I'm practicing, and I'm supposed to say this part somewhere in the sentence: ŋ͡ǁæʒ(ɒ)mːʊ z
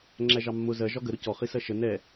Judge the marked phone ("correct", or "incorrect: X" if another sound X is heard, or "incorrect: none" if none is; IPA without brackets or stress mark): incorrect: ɑ